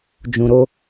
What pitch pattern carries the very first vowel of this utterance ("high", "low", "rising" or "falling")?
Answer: low